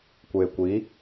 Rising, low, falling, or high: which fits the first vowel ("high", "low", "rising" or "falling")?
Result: low